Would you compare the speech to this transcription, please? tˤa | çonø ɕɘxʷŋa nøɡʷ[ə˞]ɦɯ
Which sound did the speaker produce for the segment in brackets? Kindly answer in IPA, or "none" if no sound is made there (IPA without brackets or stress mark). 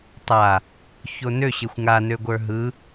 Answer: ə˞